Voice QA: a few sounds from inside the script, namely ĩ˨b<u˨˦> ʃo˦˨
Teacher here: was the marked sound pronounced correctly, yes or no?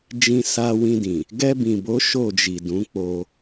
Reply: no